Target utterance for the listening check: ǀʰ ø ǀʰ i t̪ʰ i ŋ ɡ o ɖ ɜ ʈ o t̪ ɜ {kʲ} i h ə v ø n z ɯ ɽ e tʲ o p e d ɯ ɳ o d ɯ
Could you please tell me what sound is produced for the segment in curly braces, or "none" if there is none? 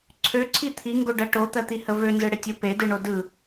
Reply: t̪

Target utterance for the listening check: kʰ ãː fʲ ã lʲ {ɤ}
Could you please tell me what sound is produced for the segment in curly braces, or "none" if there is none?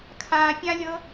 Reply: ɤ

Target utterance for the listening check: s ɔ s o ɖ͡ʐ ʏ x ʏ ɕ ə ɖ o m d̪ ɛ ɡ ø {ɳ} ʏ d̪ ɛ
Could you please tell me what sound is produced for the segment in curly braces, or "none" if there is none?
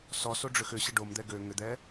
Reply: ŋ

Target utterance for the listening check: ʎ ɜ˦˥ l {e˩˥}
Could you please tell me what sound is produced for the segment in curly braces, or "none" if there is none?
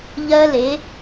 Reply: e˩˥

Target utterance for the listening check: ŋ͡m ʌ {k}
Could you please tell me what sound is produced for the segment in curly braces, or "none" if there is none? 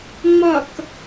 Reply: k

